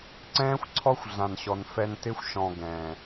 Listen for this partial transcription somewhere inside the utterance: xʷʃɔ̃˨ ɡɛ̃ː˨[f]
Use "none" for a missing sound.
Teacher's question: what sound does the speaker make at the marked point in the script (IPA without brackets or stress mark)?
none